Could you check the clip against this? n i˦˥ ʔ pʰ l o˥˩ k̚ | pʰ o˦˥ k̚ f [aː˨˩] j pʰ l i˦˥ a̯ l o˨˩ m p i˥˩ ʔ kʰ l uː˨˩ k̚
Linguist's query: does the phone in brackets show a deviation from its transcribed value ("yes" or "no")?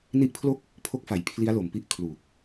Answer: yes